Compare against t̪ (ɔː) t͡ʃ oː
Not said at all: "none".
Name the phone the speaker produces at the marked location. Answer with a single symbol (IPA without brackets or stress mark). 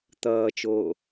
ʌː